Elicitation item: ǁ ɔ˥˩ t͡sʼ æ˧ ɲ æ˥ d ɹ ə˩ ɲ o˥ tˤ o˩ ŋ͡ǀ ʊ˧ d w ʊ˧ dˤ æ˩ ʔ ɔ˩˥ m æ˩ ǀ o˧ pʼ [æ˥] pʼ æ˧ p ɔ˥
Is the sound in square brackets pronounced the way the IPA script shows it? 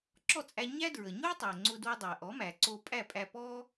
no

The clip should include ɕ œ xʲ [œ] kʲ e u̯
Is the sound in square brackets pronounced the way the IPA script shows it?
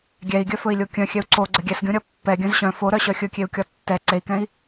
no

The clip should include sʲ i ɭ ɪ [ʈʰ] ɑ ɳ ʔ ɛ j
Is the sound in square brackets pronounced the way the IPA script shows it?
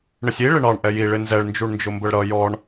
no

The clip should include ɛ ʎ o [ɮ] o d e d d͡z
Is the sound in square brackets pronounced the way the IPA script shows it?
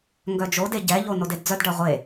no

